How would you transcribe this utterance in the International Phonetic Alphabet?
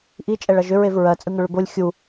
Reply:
ʔ i t͡ʃʼ ɛ ɭ ʌ ʒ ʏ ɹ e v ɹ ɜ t͡sʼ ɯ ŋ ʏ ɭ ʏ b o lʲ xʲ u

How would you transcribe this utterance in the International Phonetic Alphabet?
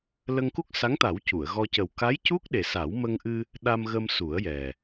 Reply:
l ə˧ ŋ k u˦˥ k̚ s a˧˥ ŋ t̪ a˨˩˦ w c u˨˩˨ ə̯ ɣ ɔ˧ c ə˨˩ w k a˧˥ j c u˦˥ k̚ ɗ e˨˩ s a˨˩˦ w m ə˧ ŋ ʔ ɨ˧ | ɗ a˧ m ɣ ə˧ m s u˨˩˦ ə̯ j ɛ˨˩

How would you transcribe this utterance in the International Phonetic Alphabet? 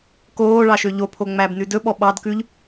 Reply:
k oː ɭ ɑ ʃ ø ʎ o pʰ o ŋ͡m æ b n ʉ d ɵ ɓ ɔ ɓ ɑ d k ʉ ʎ

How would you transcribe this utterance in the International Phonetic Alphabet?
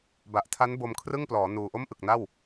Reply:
b a˨˩ ʔ tʰ a˦˥ n b o˧ m kʰ r ɯ˥˩ ŋ p l ɔː˩˦ n uː˨˩ ʔ o˥˩ m ʔ ɯ˨˩ k̚ n a˥˩ w

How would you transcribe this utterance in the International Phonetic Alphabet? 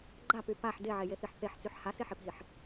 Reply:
ɡ͡ǃ a p y p a ħ d e ʕ e j e θ i ħ θ e ħ t͡s y ħ h a s e ħ e p ɦ i ħ

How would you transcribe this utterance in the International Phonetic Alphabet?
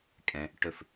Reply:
kʼ ɛ̃˧ | ʈ ɵ˥˩ f

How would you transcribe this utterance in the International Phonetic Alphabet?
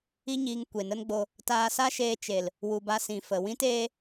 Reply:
i˦ ɲ iː˧ ŋ kʷ e˨ n ə˦ n ɡ͡b o˧ | t aː˧ s a˦ ʃ eː˧ t͡ʃ e˨ l | w u˨ b a˧ s ĩ˨ f ə˨ w ĩ˦ t eː˦

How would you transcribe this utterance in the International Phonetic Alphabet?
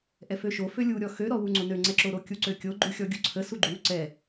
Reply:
ʔ ɛ f ø ʃ o f ø lʲ u ɾʲ ɔ x ø ɾ ɔ w u ŋ͡ǀ o n ø ŋ͡ǀ ɛ ǁ o ɾ o kʲ u ǀ ø kʲ o ɡ͡ǃ u xʲ ɔ ɡʲ u ǀʰ ə s u ɡ͡ǃ u ǀ ɛ

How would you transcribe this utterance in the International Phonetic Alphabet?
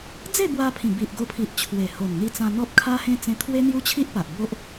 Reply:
d͡z e˥˧ b w a˧ pʰ ĩ˨˩ b i˨ ʔ ɡ o˧ pʰ i˨ ʔ t͡ɕʰ w e˨˩ h o˨˩ n n̪ i˧ t͡s ã˧ n̪ ɔ˦ p̚ kʰ a˦ h ẽ˦ t͡s ẽ˧ t̪ʰ w e˦ n̪ j u˦ t͡ɕʰ i˦ ʔ p a˨ ʔ b o˦ ʔ

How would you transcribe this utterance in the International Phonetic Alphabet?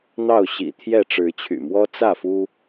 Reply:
n̪ ɑ˥˨ ʊ̯ ɕ ḭ˨˩ t̪ʰ j ɛ˥˨ ʈ͡ʂ ɻ̩˨˦ t͡ɕʰ y̰˨˩ m w ɔ˦ t͡s ä˥˨ f u˦

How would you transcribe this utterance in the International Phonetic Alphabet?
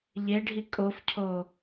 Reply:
ʎ e ɖʱ i kʼ o f cʰ o

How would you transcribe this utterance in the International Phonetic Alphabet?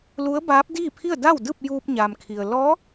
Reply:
l u˧˥ ə̯ b aː˧˥ p̚ d iː˥˨ pʰ i˥˨ ə̯ d a˥˨ w d ɯː˥˨ p̚ j uː˧ p̚ ɲ aː˩ m kʰ i˩ ə̯ l ɔː˧˥

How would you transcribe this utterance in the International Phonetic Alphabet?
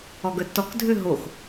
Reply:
ɔ ɡ œ tː ɔ k dʱ ø ɦ o x

